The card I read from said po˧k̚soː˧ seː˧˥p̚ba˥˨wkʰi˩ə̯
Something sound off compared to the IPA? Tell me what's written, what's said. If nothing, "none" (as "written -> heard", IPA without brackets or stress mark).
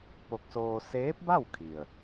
none